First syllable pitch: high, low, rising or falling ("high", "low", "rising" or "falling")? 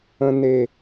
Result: low